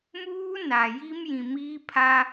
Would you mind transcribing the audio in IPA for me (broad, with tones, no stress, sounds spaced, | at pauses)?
m uː˦ n a˨ j i˦ m j ĩ˨ m iː˦ pʰ a˦